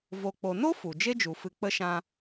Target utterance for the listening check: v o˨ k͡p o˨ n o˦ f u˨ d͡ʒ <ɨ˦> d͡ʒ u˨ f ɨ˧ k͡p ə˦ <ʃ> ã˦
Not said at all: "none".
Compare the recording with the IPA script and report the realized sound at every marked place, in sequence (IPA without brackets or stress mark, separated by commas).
e˦, ʃ